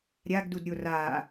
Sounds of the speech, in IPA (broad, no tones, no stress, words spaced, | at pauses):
ɾʲaɡdudɾʲo ra